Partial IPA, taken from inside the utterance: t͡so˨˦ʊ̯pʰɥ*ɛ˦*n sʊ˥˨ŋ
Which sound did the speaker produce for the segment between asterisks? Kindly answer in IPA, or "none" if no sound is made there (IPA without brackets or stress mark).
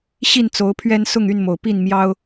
ɛ˦